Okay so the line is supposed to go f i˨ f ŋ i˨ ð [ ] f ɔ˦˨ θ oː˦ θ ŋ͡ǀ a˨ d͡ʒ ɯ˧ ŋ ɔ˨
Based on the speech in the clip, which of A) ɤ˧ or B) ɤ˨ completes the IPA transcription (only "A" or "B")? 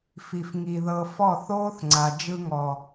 B